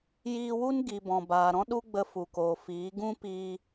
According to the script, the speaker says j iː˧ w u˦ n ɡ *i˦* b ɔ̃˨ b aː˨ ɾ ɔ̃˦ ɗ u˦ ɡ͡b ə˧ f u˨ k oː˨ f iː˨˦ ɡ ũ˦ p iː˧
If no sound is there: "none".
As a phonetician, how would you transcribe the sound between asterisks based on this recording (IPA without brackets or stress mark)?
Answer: i˨